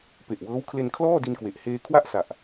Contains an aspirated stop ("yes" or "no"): yes